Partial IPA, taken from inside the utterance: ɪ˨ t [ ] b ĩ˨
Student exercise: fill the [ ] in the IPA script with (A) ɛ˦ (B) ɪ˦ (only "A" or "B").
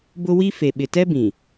A